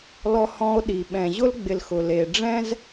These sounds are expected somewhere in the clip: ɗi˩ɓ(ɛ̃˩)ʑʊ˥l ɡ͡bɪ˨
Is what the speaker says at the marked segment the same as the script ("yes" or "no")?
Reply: yes